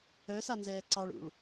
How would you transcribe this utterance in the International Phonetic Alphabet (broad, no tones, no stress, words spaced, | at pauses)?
œsanzɛː ǀɑɭṵɭ